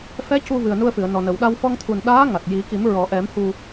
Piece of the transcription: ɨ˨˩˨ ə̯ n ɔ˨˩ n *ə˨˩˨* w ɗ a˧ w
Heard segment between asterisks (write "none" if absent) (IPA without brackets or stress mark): ə˨˩˨